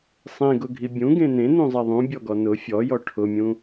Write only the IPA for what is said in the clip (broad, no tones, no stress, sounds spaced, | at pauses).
sˤ ẽ ɡ ʊ ɡʱ i bʲ ũ ɡ ẽ n ẽ n ũ zˤ ɛ ðˤ ũ bʲ ɔ ɡ ɔ n ʊ fʲ ɔ j ɔ ʈʰ ʊ mʲ ũ